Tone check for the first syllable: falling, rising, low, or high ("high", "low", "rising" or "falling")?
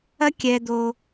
high